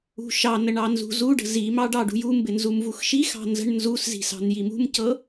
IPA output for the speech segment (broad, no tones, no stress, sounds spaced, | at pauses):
ṳ ʃ ɑ n ə ɳ ɑ n z ṳ z u ɖ ə̤ z i m ɑ ɖ ɑ ɖ ṳ j u m b ɪ n z u m v u x ʃ i x ɑ̤ n z ə̤ ɳ n z u s z i̤ s ɑ̤ n j i m ṳ m c ɤ